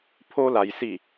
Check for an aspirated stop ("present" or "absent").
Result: present